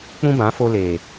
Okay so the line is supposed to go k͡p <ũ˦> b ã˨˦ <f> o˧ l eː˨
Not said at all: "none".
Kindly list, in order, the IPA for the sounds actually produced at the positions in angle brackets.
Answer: ũ˦, f

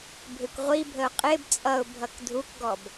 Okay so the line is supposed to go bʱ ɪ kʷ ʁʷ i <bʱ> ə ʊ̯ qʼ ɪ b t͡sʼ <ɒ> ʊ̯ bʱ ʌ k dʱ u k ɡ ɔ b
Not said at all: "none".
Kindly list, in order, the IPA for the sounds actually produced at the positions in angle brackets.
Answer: bʱ, ʌ

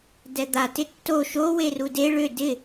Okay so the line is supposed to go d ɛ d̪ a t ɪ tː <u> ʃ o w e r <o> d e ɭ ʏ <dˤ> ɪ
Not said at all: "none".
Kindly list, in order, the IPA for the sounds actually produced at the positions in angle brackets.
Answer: o, u, d

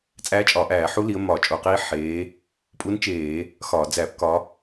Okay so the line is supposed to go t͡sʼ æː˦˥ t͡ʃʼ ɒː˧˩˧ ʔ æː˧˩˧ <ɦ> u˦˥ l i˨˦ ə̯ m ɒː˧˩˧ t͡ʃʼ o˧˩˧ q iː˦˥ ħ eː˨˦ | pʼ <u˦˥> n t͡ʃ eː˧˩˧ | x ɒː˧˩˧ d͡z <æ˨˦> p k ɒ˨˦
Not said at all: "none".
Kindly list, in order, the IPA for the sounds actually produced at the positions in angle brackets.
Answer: ħ, u˦˥, æ˧˩˧

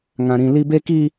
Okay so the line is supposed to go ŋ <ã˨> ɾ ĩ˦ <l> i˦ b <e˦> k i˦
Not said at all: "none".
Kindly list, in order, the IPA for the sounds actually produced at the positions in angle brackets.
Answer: ã˦, l, e˦

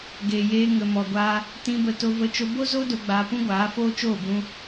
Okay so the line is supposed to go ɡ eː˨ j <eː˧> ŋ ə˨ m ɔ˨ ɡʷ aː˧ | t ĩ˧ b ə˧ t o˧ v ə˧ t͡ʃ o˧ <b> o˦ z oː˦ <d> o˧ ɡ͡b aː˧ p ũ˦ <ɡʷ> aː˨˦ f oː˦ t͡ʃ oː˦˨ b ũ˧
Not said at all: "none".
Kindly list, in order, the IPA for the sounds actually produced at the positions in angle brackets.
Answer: eː˧, b, d, ɡʷ

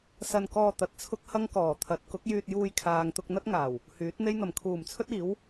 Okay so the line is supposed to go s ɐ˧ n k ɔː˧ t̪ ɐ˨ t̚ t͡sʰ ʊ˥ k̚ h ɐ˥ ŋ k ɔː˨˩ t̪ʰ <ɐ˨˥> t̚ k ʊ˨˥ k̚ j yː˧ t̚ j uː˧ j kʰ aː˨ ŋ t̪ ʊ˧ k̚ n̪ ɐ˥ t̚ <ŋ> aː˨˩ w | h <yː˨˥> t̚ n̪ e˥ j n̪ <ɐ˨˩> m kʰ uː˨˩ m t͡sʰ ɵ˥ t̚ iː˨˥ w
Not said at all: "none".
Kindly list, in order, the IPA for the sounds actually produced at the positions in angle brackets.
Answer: ɐ˨˥, ŋ, yː˨˥, ɐ˨˩

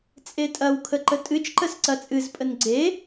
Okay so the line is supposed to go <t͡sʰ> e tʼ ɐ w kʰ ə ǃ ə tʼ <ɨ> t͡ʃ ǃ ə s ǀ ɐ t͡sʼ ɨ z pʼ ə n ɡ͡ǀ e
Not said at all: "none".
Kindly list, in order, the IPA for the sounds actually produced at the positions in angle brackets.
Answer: t͡sʼ, ɨ

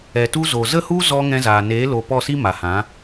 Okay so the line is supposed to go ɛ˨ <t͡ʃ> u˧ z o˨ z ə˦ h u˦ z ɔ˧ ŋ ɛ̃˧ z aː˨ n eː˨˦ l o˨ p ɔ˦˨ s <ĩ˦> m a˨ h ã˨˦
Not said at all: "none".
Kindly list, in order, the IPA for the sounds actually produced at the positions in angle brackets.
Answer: t, i˦

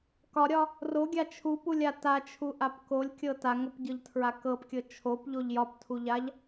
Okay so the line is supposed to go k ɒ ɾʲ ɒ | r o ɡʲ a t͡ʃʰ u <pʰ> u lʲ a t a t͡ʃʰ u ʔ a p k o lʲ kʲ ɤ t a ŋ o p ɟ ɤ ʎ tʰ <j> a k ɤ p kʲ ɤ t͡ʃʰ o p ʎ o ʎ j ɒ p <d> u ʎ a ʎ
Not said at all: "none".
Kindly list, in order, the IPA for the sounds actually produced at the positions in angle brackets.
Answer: p, ɹ, tʰ

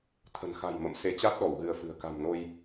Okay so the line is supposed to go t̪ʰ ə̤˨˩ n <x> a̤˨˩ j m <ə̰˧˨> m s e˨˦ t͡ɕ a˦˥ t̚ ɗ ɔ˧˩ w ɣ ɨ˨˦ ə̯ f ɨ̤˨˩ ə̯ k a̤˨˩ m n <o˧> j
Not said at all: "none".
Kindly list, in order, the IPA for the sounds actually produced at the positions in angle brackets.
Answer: x, ə̰˧˨, o˧

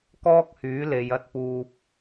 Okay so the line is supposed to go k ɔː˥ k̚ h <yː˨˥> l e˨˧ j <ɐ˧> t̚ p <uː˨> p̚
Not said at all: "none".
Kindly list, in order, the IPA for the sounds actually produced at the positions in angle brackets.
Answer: yː˨˥, ɐ˧, uː˨

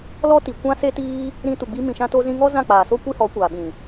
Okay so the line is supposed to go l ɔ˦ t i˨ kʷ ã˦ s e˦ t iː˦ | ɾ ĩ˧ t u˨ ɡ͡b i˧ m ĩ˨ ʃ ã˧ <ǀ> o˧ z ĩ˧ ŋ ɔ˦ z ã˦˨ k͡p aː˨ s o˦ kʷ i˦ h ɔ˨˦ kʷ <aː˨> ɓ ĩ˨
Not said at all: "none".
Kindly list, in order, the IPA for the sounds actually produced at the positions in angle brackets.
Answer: t, aː˨

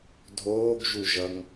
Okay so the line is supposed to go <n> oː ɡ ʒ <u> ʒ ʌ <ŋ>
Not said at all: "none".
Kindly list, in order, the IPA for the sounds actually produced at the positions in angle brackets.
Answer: dʱ, u, ŋ

